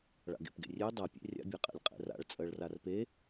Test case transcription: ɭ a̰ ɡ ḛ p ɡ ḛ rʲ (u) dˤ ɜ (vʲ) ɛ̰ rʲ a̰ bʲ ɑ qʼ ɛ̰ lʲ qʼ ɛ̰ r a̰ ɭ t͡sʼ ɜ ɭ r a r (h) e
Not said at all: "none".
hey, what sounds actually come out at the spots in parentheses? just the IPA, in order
ø, pʲ, p

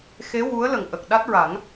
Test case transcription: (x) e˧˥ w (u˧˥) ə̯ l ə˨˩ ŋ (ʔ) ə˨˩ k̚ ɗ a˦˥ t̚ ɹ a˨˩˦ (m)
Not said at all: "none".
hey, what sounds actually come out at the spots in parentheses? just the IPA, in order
x, u˧˥, ʔ, ŋ

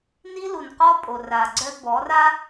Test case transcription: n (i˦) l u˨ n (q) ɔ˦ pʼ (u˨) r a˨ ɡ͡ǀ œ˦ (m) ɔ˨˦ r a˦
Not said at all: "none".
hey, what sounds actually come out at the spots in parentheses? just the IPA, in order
i˦, q, o˨, b

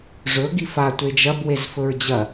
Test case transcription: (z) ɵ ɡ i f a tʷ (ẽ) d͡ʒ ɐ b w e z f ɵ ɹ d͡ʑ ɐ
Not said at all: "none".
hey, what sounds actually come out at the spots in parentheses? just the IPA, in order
ʐ, e

